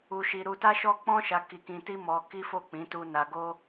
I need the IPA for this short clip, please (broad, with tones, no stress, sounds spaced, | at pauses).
u˧ ʃ i˧ ɾ u˧ t a˦ ʃ ɔ˦ k͡p ɔ̃˦ ʃ a˧ k i˧ k ĩ˧ t i˦ m ɔ˧ k i˦ f o˦˨ k͡p ĩ˨˦ t u˧ n a˧ ɡ o˦